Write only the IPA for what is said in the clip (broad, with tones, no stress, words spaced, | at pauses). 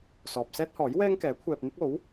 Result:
sɔː˨p̚sɛː˥t̚hɔː˨˥j wɛː˥ŋ kɛː˨˥kʷʰɛː˧p̚n̪ɪ˥k̚ o˨˥w